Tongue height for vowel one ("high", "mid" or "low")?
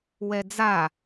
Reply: mid